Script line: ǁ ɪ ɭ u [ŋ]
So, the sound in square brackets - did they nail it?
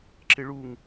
yes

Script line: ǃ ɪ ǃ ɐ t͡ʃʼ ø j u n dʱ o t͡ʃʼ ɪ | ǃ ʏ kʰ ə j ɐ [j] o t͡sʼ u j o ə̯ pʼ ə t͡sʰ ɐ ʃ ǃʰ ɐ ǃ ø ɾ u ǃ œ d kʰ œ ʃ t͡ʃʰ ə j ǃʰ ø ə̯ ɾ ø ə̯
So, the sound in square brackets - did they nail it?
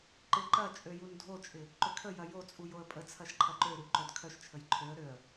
yes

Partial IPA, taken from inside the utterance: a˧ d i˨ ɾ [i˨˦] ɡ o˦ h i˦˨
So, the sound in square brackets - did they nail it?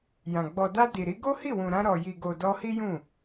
yes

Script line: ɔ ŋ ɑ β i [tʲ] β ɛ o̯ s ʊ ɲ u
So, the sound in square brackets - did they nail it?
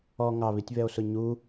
yes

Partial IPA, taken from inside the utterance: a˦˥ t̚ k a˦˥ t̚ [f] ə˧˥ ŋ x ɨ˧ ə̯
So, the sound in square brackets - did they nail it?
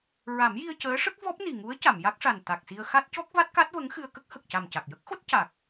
no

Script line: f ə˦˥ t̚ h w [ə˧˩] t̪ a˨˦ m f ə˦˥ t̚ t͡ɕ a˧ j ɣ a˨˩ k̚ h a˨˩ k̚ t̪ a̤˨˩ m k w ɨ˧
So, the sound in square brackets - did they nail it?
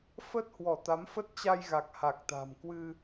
no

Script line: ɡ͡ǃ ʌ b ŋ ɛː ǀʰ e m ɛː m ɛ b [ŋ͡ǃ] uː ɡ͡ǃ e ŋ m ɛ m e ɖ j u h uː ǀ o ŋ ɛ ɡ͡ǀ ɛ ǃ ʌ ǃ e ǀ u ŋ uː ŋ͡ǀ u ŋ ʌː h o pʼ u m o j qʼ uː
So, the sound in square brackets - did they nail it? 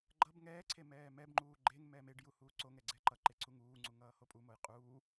yes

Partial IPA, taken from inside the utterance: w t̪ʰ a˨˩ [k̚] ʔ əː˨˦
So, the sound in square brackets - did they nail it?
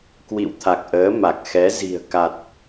yes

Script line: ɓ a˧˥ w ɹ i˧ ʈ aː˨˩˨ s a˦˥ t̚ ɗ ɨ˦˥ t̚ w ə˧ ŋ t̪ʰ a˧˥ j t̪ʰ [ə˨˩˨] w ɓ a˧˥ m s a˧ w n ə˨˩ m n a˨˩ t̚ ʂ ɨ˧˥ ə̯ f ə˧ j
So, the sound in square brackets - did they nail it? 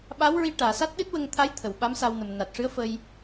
yes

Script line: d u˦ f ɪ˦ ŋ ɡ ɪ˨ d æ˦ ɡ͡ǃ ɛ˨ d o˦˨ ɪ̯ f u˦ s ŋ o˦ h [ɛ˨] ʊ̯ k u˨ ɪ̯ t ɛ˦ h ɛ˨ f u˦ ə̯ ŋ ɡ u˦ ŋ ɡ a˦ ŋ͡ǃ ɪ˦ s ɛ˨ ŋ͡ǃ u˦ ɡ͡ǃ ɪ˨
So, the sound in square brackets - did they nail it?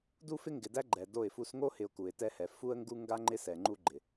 no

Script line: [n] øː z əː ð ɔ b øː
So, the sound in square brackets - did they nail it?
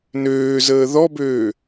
yes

